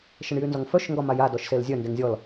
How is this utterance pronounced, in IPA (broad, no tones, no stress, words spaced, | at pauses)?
ʃəɳjynzɔŋfœʃ ŋɡɒmaja dɔʃselzʲœ ndeŋzʲɔl